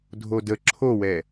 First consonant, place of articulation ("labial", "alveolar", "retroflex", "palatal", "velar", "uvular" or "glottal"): alveolar